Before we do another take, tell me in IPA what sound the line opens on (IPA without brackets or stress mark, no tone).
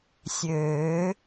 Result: sʲ